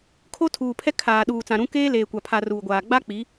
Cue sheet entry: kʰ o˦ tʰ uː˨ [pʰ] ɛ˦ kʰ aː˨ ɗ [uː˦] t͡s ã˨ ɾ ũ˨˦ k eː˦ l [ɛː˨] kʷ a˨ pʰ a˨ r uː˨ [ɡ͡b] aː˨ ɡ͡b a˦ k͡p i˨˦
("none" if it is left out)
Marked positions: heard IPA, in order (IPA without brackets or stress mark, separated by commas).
pʰ, uː˨, eː˨, ɡʷ